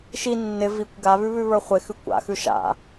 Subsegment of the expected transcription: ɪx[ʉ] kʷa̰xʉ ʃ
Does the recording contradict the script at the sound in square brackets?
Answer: no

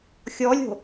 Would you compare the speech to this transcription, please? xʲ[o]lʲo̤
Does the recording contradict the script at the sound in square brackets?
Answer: yes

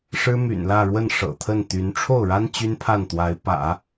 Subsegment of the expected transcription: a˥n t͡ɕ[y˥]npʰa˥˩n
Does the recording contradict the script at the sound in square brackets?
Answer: no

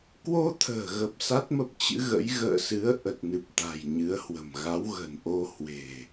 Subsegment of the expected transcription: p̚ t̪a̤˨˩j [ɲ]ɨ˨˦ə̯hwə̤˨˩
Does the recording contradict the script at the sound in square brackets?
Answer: no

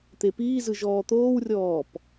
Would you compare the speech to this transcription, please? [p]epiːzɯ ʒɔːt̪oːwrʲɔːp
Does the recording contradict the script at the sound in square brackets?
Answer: yes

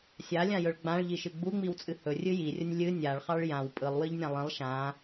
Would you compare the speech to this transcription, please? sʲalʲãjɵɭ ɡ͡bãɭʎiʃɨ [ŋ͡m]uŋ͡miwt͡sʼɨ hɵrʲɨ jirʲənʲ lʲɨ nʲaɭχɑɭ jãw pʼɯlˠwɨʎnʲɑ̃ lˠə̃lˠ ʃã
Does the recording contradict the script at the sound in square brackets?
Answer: yes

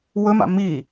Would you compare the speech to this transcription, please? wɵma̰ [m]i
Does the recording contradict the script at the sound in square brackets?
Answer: no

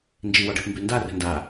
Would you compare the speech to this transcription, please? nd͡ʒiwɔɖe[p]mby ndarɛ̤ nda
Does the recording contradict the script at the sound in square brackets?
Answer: no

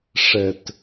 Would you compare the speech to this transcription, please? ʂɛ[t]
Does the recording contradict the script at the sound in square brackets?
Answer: no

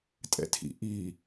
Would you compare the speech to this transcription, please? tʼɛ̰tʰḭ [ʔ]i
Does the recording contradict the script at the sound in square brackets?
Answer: no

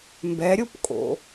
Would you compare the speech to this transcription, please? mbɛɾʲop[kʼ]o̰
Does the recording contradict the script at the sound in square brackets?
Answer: no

